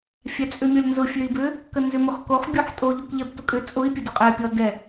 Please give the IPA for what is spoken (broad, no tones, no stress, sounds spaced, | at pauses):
fʲ æ t͡sʼ ʏ mʲ ɔ lʲ n z ʊ fʲ ø i̯ b ʏ | k ə n z ʏ m ʊ χ k o χ bʲ o ħ tʼ o ʎ o k ʎ ɛ b t ʊ kʼ ʏ t͡sʼ ʊ i̯ pʲ ə d ʊ qʼ ɛ pʲ ɔ d ɛ